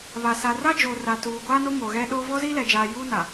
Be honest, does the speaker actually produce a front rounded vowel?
no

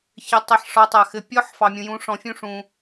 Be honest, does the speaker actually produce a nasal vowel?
yes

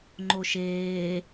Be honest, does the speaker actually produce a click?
yes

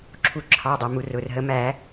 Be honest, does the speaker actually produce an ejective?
no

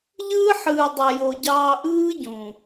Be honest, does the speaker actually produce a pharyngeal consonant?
yes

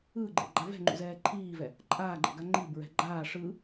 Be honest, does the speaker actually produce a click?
yes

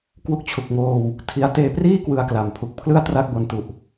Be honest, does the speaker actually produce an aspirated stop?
yes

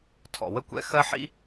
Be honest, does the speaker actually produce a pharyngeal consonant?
yes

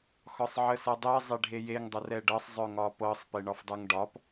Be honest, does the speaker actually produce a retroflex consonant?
yes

